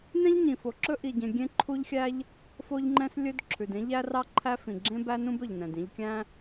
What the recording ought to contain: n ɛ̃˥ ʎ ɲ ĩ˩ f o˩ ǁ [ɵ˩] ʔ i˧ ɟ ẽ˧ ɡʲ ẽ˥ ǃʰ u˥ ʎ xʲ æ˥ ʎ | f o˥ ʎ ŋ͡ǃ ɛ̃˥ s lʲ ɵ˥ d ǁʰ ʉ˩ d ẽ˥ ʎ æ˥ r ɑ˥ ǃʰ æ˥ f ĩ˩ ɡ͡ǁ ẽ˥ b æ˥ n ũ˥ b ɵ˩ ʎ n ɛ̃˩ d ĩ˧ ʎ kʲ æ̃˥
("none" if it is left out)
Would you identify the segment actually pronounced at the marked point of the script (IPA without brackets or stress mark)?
ɵ˥